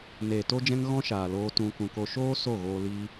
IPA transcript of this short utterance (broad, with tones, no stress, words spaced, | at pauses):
neː˨to˦d͡ʒɛ̃˦ŋ ɣɔ̃˦ʃaː˨ loː˦tũ˦kũ˧ko˦ ʃoː˦ so˦˨ɣoː˧ liː˦